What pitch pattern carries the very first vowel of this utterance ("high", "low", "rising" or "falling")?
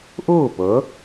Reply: falling